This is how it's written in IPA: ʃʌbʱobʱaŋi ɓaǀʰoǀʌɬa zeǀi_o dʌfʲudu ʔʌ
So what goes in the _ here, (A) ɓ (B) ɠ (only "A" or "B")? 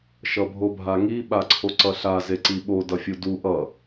A